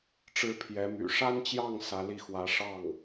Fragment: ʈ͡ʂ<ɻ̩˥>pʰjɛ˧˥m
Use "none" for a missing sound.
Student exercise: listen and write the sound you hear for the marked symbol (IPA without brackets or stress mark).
ɻ̩˥